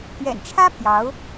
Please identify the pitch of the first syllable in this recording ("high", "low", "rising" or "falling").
low